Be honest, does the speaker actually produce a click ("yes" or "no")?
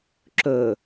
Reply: yes